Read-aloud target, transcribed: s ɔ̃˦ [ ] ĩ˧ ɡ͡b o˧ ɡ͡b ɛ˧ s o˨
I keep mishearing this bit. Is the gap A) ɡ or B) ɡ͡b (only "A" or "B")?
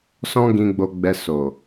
A